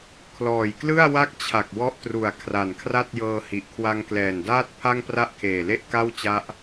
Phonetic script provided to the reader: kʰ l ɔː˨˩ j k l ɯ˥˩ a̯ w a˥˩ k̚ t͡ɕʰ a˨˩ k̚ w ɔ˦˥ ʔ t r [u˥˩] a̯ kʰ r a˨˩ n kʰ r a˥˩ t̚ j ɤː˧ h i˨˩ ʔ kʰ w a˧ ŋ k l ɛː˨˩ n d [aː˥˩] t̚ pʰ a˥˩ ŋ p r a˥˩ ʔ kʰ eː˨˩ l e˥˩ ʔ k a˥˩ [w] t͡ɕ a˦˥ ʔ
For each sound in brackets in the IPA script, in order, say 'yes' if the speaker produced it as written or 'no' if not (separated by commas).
no, yes, yes